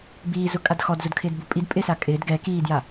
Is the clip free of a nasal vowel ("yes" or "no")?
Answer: yes